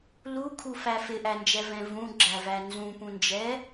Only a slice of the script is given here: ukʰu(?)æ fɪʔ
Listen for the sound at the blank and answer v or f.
f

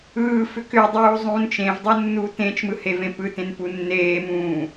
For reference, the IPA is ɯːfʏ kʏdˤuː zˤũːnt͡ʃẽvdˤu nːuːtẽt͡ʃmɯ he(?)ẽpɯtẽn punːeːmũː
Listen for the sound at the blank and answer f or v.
v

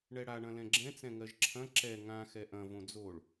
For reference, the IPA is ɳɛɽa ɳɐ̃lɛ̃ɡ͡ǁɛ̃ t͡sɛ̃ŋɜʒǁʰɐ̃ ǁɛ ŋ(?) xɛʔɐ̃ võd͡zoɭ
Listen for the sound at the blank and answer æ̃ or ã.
ã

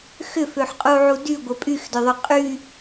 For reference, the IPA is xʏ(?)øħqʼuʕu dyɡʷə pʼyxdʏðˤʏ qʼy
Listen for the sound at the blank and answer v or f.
f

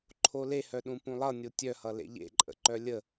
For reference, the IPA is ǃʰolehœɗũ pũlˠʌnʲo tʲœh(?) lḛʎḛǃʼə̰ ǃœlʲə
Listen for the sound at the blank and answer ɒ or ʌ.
ʌ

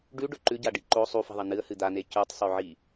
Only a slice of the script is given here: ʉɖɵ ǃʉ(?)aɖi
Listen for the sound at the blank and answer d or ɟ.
ɟ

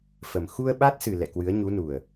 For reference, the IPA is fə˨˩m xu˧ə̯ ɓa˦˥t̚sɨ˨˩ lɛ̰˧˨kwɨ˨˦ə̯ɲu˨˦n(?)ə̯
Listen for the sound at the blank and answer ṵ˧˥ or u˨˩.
u˨˩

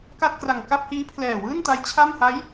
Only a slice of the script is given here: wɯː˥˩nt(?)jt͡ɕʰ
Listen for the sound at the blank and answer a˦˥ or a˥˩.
a˦˥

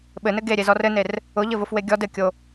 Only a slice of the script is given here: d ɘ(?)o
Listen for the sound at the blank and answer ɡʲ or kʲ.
kʲ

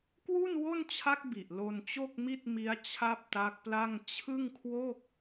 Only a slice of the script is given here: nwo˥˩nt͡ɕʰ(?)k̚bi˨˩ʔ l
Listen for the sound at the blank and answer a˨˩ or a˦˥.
a˦˥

